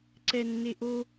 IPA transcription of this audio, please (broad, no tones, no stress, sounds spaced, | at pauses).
ǀ ɛ nː e ʔ o